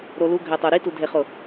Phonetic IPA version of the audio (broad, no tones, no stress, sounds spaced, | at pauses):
ɾ o l u ɡʱ ɛ tˤ o ɾ i t u dʱ e χ ʊ